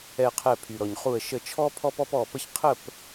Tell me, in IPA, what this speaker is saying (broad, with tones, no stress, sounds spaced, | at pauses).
ɛ˧˩ qʰ ɛ˧˩ pʰ y˩ ɾ ɔ˩ ɲ χ u˧˩ ə̯ ʃ ə˧˩ t͡ʃʰ ɔ˦ pʰ ɔ˦ p ɔ˦ p ɔ˧˩ p ə˦ ç qʰ ə˥˨ p